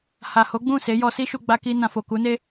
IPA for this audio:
h a˨ h o˨˦ ɡ͡b ũ˦˨ s e˨˦ j ɔ˧ s i˦ ʃ u˧ ɡ͡b a˧ k i˧ n ã˨ f o˨ k u˨˦ n e˦

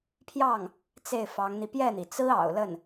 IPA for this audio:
pʰ j ɑ˥˩ ŋ | t͡s e˥˩ ɪ̯ f ɑ˧˥ ŋ n̪ i˧ p j ɛ˥˩ n̪ i˩ t͡s ɹ̩˥ ɑ̰˨˩ ʊ̯ l ə˥˩ n

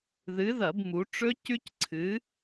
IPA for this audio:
ð ɨ˨˥ ð ɐ˧˩˧ b m u˩˧ ʈ͡ʂ ɵ˦˥ c ʉ˦˥ c ǀʰ ɨ˨˥

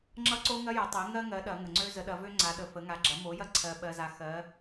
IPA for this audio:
ŋ͡ǁ ʌ˦ ǀ o˦ ŋ ɐ˦ j ʌ˩˧ tˤ ɜ˩˧ ŋ ɜ˦ ŋ ɜ˩˧ ɗ ɐ˩˧ ŋ ə˩ ŋ͡ǀ ø˦ z ə˩˧ ɗ ɐ˩˧ v ø˦ ŋ͡ǀ a˩˧ ɗ ə˩ f ə˩˧ ŋ a˩˧ ɡ͡ǁ ɐ˩˧ m o˩˧ j ɐ˦ ǀʰ ɜ˩ ɓ ɜ˩ z a˩ x ɜ˩˧

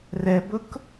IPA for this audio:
r ɛ b ʊ k

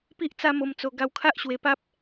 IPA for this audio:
p i˦ ʔ t͡s a˦ m o˧ m t͡s o˧ ɡ a˧ w kʰ a˦ ʔ ɕ w e˧ p a˦ p̚

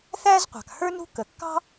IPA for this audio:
θ æ˥ z qʷ ɑ̤˩ k h ə˞˥ n ṳ˥ k ə˩ kː ɑ̤˥

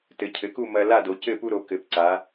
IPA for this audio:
t ɘ˩˧ cʰ ɘ˩˧ k u˥˨ m ɐ˦ l a˥˨ d o˩˧ c ɘ˥˨ p u˦ ɾ o˩˧ k ɘ˩˧ p ǀ a˩˧

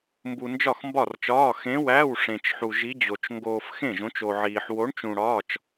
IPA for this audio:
m b u˧ n d͡ʒ ɒ˥˨ x m b ɒ˥˨ r t͡ʃ ɒː˧˥˧ x ẽ˧˥ w æ˧˥˧ w ʂ ẽ˧ t͡ʃ ħ u˧ ʒ i˧˥ d͡ʑ o˧ t͡ʃ ŋ ɡ oː˧ f x ẽ˥˨ ʒ õ˧˥ t͡ʃ o˧ ʕ iː˧ ħ w o˧˥ ɳ t͡ʃ ũ˧ ɽ ɒː˧˥˧ t͡ʃ

